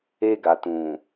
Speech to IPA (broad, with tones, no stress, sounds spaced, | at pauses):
e˧ ɡ a˨ t ũ˨